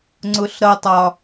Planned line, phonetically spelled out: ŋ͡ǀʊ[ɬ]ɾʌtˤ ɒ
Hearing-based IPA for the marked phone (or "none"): ɬ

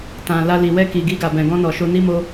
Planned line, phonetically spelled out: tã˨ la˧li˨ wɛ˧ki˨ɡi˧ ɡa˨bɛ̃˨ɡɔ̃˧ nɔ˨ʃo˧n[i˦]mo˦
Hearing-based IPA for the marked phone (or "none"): i˦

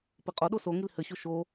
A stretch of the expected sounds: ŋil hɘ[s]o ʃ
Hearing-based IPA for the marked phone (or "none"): ɕ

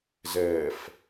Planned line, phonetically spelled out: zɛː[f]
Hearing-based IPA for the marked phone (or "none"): f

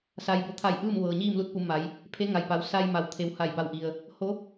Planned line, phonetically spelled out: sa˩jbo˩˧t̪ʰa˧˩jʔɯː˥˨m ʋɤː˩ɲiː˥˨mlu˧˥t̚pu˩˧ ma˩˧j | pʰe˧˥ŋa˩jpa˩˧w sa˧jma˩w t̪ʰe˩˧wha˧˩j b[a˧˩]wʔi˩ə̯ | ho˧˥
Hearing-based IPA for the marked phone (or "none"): a˧˩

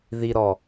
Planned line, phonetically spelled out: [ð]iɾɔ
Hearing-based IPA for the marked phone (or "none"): ð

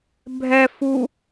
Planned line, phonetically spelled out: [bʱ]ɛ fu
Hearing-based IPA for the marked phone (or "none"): bʱ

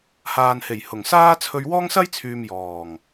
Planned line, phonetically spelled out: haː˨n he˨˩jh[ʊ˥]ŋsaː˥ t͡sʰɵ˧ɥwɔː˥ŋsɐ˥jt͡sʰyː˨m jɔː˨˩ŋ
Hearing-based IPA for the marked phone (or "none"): ʊ˨˩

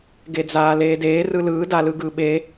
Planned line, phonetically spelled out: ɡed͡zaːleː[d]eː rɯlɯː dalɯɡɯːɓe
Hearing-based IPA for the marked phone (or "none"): d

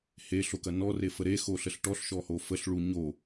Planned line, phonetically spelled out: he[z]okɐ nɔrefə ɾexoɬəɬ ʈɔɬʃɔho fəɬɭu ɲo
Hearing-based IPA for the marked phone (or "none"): ɬ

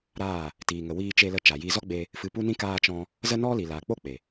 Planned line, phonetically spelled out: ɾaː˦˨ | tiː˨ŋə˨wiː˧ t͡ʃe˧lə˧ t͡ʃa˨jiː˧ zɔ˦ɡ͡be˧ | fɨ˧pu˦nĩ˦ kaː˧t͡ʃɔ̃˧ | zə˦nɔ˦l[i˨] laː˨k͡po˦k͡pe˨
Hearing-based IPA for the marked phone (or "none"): i˨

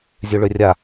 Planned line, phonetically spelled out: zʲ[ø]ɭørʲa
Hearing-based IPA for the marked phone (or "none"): ø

